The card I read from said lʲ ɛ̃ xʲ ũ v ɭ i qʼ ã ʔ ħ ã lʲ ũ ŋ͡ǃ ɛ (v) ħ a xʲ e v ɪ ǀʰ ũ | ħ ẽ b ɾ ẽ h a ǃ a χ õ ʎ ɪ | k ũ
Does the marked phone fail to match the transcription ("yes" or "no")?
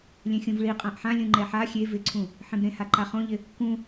yes